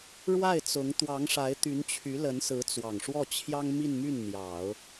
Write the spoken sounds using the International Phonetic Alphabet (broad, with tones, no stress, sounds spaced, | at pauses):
ɻ w a˥˩ ɪ̯ t͡s ʊ˧˥ ŋ t̪ w ɑ˧˥ ŋ ʂ a˧˥ ɪ̯ t̪ y˧˥ n t͡ɕʰ y˧˥ l ə˧˥ n s ɹ̩˧˥ t͡s w ɑ˨˩ ŋ ʂ w ɔ˥˩ t͡ɕʰ j ɑ˥ ŋ m i˥˧ n m y˥˩ n n̪ j ɑ˨˩˦ ʊ̯